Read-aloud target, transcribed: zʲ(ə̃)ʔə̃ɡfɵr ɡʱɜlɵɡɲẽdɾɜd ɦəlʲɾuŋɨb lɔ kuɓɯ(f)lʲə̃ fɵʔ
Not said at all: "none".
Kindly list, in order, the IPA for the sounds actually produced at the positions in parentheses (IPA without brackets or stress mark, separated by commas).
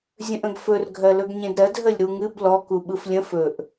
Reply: ə̃, f